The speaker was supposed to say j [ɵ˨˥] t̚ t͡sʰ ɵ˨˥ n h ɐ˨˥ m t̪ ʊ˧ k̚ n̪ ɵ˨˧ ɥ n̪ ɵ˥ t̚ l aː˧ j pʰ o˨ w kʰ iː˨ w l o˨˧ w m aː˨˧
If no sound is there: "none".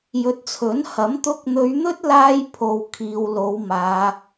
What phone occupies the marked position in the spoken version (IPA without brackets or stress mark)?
ɵ˨˥